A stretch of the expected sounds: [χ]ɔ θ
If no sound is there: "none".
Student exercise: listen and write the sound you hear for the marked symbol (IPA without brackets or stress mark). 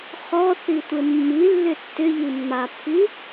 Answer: χ